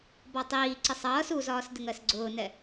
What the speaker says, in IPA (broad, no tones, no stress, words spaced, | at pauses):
bɒtˤiːǀɪsˤ ʌːs uzɒːs dɪŋɜsɡ͡ǀʊːnɛ